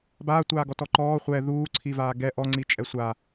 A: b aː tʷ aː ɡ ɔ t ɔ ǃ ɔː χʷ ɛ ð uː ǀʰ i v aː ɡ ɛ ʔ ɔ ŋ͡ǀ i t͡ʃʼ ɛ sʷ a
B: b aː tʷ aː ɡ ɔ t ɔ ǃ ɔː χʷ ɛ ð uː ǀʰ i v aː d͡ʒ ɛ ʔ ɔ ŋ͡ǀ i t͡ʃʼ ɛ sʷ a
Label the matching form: A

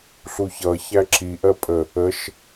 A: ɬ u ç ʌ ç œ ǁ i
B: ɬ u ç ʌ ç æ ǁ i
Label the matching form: B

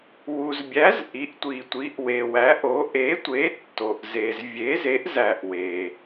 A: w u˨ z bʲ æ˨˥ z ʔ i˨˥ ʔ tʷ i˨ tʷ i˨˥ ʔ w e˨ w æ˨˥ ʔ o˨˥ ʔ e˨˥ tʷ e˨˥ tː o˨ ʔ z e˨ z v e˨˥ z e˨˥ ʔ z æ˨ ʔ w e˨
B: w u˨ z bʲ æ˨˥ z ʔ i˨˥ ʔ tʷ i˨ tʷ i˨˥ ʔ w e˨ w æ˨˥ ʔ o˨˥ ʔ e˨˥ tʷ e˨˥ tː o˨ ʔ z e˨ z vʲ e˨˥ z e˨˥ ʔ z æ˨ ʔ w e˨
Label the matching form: B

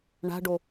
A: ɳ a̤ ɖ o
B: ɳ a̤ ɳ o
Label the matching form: A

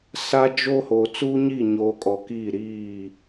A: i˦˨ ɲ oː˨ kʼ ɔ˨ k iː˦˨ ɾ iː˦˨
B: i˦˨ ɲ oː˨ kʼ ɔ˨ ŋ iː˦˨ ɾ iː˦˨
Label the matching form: A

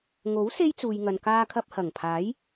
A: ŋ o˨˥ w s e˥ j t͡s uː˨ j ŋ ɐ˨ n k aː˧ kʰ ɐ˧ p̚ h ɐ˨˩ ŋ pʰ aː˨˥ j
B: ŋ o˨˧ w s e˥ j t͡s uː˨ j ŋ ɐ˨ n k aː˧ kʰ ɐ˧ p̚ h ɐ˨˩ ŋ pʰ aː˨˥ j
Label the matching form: A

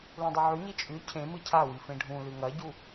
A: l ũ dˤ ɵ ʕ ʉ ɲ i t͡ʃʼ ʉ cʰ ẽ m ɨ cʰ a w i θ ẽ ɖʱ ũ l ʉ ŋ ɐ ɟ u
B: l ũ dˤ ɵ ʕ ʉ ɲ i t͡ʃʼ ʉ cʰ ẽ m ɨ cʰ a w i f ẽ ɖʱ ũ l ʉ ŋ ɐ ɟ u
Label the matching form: B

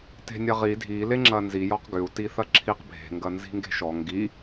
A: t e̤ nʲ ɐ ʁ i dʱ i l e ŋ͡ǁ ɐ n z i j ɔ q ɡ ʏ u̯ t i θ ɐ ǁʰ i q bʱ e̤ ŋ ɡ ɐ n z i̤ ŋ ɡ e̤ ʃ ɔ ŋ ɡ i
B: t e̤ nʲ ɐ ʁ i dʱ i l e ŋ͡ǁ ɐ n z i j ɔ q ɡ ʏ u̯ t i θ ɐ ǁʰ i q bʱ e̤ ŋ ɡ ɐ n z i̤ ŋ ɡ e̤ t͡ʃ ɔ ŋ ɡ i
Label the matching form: A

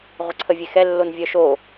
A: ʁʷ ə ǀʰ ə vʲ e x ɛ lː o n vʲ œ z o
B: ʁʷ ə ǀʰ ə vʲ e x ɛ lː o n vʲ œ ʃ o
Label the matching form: B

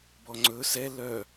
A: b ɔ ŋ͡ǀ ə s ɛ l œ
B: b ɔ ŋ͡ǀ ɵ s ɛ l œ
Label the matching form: B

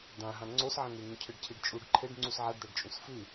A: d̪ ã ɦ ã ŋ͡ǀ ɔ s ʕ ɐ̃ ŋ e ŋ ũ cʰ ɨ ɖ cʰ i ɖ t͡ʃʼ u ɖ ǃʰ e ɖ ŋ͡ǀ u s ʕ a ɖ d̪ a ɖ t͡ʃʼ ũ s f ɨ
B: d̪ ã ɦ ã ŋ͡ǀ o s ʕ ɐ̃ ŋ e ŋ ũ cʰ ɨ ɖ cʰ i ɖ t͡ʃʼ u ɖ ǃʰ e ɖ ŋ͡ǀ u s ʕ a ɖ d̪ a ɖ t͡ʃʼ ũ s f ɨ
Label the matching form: B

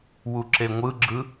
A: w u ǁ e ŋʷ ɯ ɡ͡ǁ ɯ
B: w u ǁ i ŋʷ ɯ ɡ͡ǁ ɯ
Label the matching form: A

